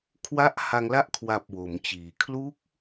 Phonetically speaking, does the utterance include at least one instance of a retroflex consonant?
no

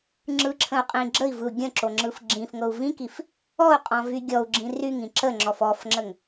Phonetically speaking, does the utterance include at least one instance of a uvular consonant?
yes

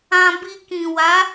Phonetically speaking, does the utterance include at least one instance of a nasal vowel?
yes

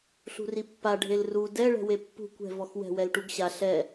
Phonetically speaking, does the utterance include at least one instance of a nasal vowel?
no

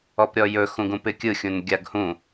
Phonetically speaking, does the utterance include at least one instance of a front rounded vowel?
no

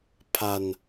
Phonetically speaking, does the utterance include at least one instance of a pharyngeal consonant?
no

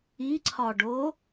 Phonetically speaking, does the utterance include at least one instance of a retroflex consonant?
yes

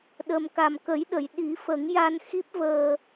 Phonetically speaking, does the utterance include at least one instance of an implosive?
yes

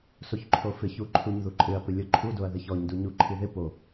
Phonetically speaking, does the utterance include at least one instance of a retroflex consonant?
no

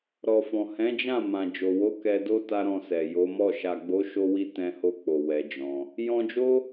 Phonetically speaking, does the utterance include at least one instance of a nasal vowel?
yes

